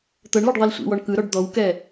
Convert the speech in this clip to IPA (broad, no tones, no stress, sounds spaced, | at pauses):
t̪ ɤ ɳ l ɤ ɖ ðˤ i l sʷ ḭ w ɔ ɳ k ɯ ɾ ɔ ɖ d̪ ɔ w k ɛ